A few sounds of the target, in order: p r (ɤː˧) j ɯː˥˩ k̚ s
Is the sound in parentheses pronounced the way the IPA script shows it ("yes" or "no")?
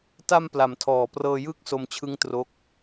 yes